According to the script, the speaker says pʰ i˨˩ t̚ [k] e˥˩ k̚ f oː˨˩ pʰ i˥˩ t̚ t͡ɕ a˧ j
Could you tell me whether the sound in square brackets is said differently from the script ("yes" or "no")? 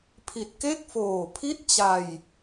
no